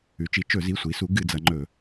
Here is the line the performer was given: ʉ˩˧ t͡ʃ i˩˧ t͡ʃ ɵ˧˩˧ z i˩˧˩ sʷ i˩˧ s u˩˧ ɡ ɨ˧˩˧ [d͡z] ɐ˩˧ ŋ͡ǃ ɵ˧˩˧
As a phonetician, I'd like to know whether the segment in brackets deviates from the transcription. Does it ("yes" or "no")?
no